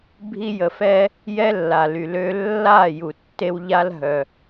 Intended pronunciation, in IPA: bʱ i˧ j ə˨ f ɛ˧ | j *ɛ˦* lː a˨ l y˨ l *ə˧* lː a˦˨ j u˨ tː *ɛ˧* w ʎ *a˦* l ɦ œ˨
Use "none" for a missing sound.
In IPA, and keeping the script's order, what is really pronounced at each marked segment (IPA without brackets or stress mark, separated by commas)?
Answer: ɛ˦, ø˧, e˧, a˦